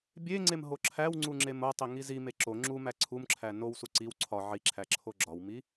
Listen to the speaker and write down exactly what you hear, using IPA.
bʲ e ŋ͡ǀ e m ɦ o ǁʰ æ w ŋ͡ǀ u ŋ͡ǁ e m o tˤ i ŋ i z i m e ǁ o ŋ͡ǁ u m æ ǀʰ u m ǁʰ æ n o w s u ǀ i w ǀʰ ɒ ʕ i ǁʰ æ ǁʰ o ɡ͡ǁ ɒ w m i

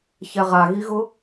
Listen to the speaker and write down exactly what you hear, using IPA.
ç ɛ ʁ a ɣ i ɣ ʊ

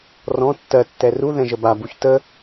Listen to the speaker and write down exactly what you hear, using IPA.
r ɔ̃ tː ɜ tː ɛ r u ð ɛ̃ ʒ ə b a b u ç t ə

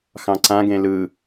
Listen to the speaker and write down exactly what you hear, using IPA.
x ɑ̃ ǀ ã ɡ ẽ l ɯ

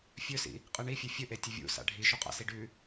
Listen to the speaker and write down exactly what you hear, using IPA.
fʲ ɵ s ḭ | qʼ ɨ ɳ i fʲ ɨ fʲ ɵ ʔ e tʲ ɵ vʲ ṵ s a̰ ɖʱ i ʃ o qʼ a̰ s i ɖ ʉ

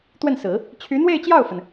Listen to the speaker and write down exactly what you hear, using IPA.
t̪ w ə˥˩ n s ɹ̩˨˩˦ | t͡ɕʰ y˧˥ n̪ w e˥˧ ɪ̯ t͡ɕ j ɑ˥˩ ʊ̯ f ə˩ n

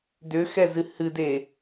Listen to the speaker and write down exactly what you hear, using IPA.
d ʏ x ɛ z ɨ h ɨ d e

